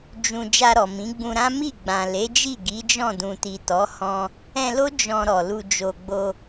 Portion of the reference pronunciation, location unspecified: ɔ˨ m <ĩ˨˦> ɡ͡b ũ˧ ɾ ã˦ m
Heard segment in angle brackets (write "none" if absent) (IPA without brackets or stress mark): ĩ˨˦